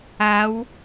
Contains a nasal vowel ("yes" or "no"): no